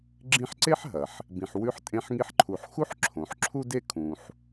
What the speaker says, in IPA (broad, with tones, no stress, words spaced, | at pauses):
ɡ͡ǁĩ˦ħǀe˥ħ ɦɐ˩ħ | bĩ˨ħ wʉ˦ħtʼẽ˦ħŋi˦ħ ǃʰu˨ħxu˥ħ ǁʰõ˨ħǁʰu˥de˥ kʰũ˨ħ